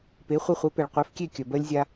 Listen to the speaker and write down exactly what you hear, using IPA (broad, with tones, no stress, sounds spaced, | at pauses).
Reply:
p e˩˥ χʷ e˧ χʷ ɛ˩˥ p ɛ˩ ɭ qʷ ɛ˩˥ f kʲ e˥˩ kʲ œ˩ b ɜ˧ lʲ zʲ a˧